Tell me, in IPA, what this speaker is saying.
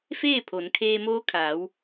f eː˥˨ pʰ o˩˧ n kʰ eː˧ m oː˧˥ kʰ aː˩˧ w

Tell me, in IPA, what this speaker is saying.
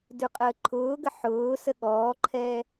d ʉ qʼ əː ǃʰ ʊː ɡ ə ħ ʊː s ə ɠ ɔː ǃʰ ɛ

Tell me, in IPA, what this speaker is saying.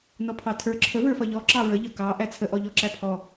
n ɔ pʰ ɑ tʰ ə˞ ǁʰ ə v ə˞ f ʌ ʎ ɔ ǁ ɑ ɹ ə ʎ ʌ k ɑ ʔ æ t͡sʰ ə ʔ ɔ ʎ ɔ ǁ æ pʰ ɔ

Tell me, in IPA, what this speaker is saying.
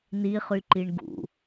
n i χ y ǃ i ɳ ɡ ṵ

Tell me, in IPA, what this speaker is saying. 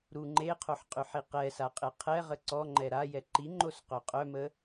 ɾ u ŋ͡ǃ e qʰ o ħ qʼ y ħ i q ɛ s a qʼ e qʰ ɛ ʁ ə ǀ ɔ ŋ͡ǃ ɛ ɾ a j ɛ ǃ i ŋ͡ǃ o s q œ qʼ œ m ə

